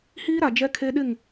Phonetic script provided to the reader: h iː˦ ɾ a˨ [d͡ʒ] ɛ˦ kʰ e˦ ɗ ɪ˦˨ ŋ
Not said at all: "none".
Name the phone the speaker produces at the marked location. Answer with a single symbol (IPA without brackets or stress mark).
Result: d͡ʒ